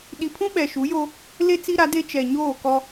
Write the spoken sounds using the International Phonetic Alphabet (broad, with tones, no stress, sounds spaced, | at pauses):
ɗ i˨ pʰ ũ˦ ɓ ɛ˨ ʃ u˨˦ j o˦ | l e˦ t͡s i˦ ɾ a˨˦ d e˦ t͡ʃ ɛ˨ ɲ oː˦˨ k ɔ˦